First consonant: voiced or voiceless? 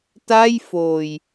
voiceless